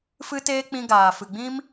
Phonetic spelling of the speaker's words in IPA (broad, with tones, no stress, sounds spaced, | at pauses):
f ɨ˦ t eː˦ k͡p ĩ˧ ɡ aː˨ f ɨ˨ ɡ͡b ĩ˦ m